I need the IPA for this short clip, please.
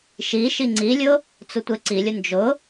ʃ i ʃ i ŋ͡ǀ i lʲ ʊ | t͡s ʊ tʷ e ǀ i lʲ ʊ n d͡ʒ ʊ

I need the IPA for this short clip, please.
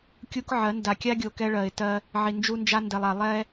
kʲ u˦ k ʕ ɜ˨˦ n d a˨ kʲ a˦ ɡʲ o˨ k ɛ˦ ɭ ɜ˨ ɪ̯ t ɜ˦ | ʕ i˨ n d͡ʒ u˦ n d͡ʒ a˦ n d ɛ˨ lˠ a˨ lˠ ɛ˦

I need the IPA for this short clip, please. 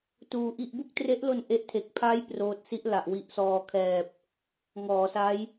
t uː˧ ʔ i˥˩ ʔ b u˥˩ k̚ t r e˦˥ ʔ l o˧ n ʔ e˦˥ ʔ tʰ e˨˩ k̚ pʰ a˦˥ j p r oː˦˥ t̚ s i˦˥ ʔ l a˨˩ ʔ w i˨˩ ʔ s ɔː˨˩ kʰ ɛː˨˩ p̚ | ŋ ɔː˩˦ s a˦˥ j

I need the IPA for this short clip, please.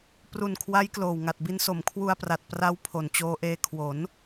p r u˨˩ n kʰ w a˦˥ j k l oː˨˩ w ŋ a˨˩ t̚ b i˧ n s o˩˦ m kʰ w u˧ a̯ p r a˨˩ t̚ p r a˦˥ w pʰ o˨˩ n t͡ɕ oː˧ ʔ eː˧ kʰ w o˩˦ n

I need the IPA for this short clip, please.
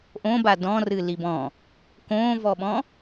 ʔ õ b a d ɔ̃ r ɨ l i b ɔ̃ | k õː v ɔ ɓ ɔ̃

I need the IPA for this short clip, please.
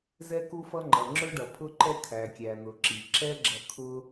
z ɛ˥ k u˥ f ʌ˥ ŋ͡ǃ ʌ˩ ŋ͡ǁ ʊ˥ ɖ ʌ˩ pʰ ʊ˥ ǃ ɛ˥ kʰ æ˩ kʲ æ˩ n̪ ʊ˩ ǁ i˩ ǁ ɛ˥ ɡ͡ǁ ʌ˧ kʰ ʊ˥

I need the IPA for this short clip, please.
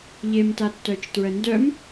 ʎ e m t a tː œ t͡ʃ t ɹ ə n d œ m

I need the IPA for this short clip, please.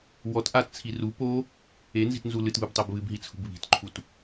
w ɔ t ʔ a t t͡sʰ i r u p o | e n z i̤ t n z u l ɨ t β ɨ b tˤ o b β ɨ b ɦ i t͡sʰ ṳ b β i̤ t ǃʰ u t

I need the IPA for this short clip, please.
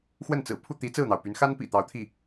x w ə˥˩ n t͡s ɹ̩˨˩ pʰ u˥˩ t̪ i˧˥ t͡s ɹ̩˥˩ n̪ ɑ˩ ʊ̯ p y˧˥ n x a˥ n p ḭ˨˩ t̪ ɑ˧˥ ʊ̯ t̪ʰ i˥˩

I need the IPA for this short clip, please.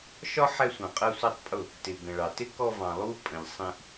ʃ ɒ˦ ħ ɛ˧ sʷ ɑ̃˨ qʼ ɜ˧ sʷ æ˦ tˤ pʼ ʊ˦˨ | t ɪ˨ ɡ ə̃˨ ɭ ɑ˨ t ɪ˦ k ɔ˧ v ɑ̃˨ lˠ u˦ pʼ ə̃˨ ʎ sˤ ĩ˧ ʔ

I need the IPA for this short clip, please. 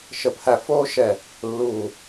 ʃ ə˧˩ pʰ æ˧˩ f oː˦˥ ʃ ɛ˧˩ | lː uː˧˩

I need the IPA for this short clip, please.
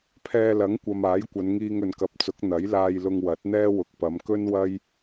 pʰ ɛː˧ l ɐ˨˥ ŋ kʷ ɐ˨ m aː˨˥ j kʷ ɐ˨˧ n ŋ iː˧ ŋ ɵ˨ n k ɐ˨˥ p̚ t͡s ʊ˨˥ k̚ n̪ ɐ˨˥ j l aː˧ j l ʊ˧ ŋ w ɐ˨˥ t̚ n̪ ɛː˥ w ʊ˨ k̚ p ɐ˨˧ m k ɵ˥ n w ɐ˥ j

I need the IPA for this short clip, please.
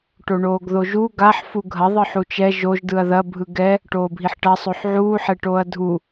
ʈ o ɳ oː ɡ ð o ʒ u ɡ a ħ f u ɡʱ ɐ ðˤ ɯ ħ u t͡ʃ ɛ ʒ o ʒ d ɯ ɐ̯ ð ɐ bʱ ɯ ɡ ɛ | ʈ oː bʱ i ħ ʈ ɐ sˤ o ħ ʕ uː ħ ɛ ʈ oː ɐ̯ dʱ u

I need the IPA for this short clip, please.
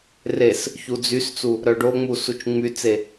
r e s | ç u d͡z y s t͡s u | ɾ œ ɖ o ŋ͡m u s u t͡ʃ ŋ͡m y t͡s e

